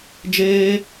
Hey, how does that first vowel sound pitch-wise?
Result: high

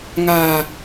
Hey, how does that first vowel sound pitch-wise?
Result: low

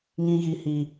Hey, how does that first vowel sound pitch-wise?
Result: low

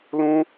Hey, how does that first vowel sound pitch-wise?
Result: high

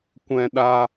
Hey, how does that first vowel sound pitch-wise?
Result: high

